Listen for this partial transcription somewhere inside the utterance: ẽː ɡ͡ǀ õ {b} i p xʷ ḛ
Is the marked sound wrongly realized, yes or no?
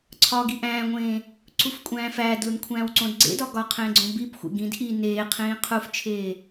no